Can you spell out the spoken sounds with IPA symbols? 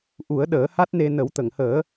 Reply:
ʔ u˨˩˦ ə̯ ɗ əː˨˩˦ h a˦˥ t̚ n e˧ n ə˨˩˦ w t̪ ə˨˩˨ ŋ h əː˨˩˦

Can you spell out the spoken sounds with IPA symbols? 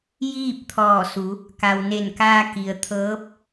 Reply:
j iː˥˨ p̚ t̪ʰ ɔː˧˩ s u˩˧ | k a˩ w n e˧˩ n k aː˧ k i˩ ə̯ t̪ʰ ɤː˧˥ p̚

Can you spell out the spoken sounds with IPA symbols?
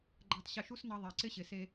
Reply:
ɡ͡ǃ æ˧ tˤ ɕ ɪ˧ ʃ u˦ s n ʌ˧ ðˤ ɛ˨ ǀ ɪ˦ ɕ ɪ˨ s e˧

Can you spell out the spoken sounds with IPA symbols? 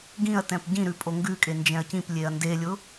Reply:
ɡ ĩ ɐ̯ t ɛ̃ p ɟ ĩ ɾ ʉ pʼ o ŋ ɡ ʉ kʼ e n d͡ʒ ɛ̃ ɐ̯ c ĩ p lʲ e ɐ̯ n d e lʲ ʊ

